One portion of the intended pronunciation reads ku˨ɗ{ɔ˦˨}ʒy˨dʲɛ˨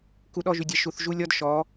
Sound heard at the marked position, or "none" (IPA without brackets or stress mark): ɔ˦˨